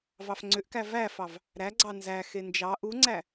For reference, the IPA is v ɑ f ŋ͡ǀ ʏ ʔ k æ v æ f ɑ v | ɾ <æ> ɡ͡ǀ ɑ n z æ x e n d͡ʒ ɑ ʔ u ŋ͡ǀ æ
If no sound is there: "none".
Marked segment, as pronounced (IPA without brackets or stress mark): æ